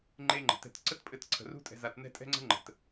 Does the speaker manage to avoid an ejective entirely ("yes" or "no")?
no